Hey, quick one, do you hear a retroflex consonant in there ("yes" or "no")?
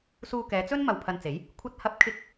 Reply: no